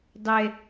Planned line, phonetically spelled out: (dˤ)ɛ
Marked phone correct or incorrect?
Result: correct